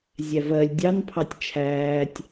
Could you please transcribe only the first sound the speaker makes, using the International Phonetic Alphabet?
zʲ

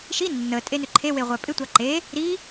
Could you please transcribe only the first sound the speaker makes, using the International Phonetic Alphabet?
ʃ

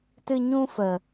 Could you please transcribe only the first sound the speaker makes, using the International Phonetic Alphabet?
t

